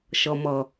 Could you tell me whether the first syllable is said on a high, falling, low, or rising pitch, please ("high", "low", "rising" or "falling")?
low